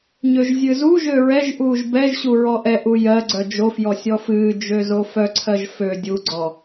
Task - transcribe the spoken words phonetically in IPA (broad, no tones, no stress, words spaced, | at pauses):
ɲøʒzʲɨzuʒø ɹɛʒʔuːʒ bɛʒɕu ɹɔʔɛʔu jɜɡ͡ǀœ d͡ʒofjɔ sʲɔfɨːd͡ʒø zofœǀʰɜʒ fø dʲuɡ͡ǀɔ